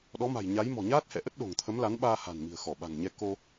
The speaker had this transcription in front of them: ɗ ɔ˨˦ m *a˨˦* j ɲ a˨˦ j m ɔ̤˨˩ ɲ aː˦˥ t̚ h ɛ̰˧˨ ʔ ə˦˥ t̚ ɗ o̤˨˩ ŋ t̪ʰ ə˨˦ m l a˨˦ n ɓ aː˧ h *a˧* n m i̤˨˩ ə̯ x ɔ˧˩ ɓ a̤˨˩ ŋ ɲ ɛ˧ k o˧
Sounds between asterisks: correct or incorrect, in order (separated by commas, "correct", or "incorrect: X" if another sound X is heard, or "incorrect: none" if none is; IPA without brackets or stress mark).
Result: incorrect: a̤˨˩, incorrect: a̤˨˩